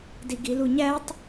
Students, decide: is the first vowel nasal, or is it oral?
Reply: oral